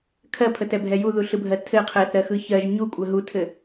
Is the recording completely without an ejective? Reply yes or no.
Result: no